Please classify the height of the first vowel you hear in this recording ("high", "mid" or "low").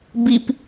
high